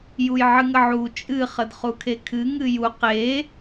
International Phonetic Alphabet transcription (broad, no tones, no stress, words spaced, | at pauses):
jujʕɨŋəʕu t͡ʃʼɨ χədχukʰekʰɨ ŋɨju qe